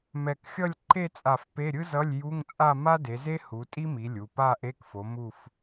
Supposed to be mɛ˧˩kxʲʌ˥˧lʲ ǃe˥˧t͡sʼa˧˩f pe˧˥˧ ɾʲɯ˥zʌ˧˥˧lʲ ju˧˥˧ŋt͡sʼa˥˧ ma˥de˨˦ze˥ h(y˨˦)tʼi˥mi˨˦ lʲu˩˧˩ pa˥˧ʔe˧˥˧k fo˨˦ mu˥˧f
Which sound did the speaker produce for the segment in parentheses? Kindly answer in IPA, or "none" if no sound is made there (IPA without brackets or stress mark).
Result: u˨˦